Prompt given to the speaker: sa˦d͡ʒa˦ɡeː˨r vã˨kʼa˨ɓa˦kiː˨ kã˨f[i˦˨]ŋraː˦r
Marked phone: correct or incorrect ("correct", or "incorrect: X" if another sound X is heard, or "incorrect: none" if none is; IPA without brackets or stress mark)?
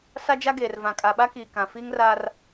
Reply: incorrect: i˦